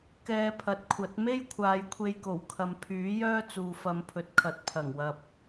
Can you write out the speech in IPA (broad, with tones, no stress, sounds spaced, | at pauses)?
k ɛː˧ pʰ ɐ˨ t̚ kʷʰ ɐ˨˥ t̚ m e˥ j kʷʰ aː˨˧ j kʷʰ e˧ j k o˨˩ w kʰ ɐ˨ m pʰ yː˨˥ j œː˥ t͡s uː˨ f ɐ˨˧ m pʰ ɵ˨ t̚ kʰ ɐ˨ t̚ pʰ ɐ˨˩ ŋ w ɐ˨ p̚